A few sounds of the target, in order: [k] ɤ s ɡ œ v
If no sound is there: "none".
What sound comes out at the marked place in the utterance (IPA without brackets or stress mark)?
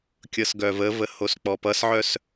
kʲ